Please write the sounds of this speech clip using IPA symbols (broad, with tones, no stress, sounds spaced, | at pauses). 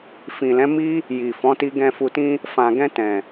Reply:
f ĩ˨ l ɛ̃˨˦ m i˦ | j i˨ f ɔ̃˨˦ t i˧ ɡ ɛ̃˨ f u˨ t ĩ˧ | f ã˨ ɡ ɛ̃˧ t ɛ̃˨